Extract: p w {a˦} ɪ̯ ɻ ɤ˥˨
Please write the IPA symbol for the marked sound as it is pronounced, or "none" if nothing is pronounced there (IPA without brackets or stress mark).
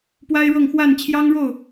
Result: a˦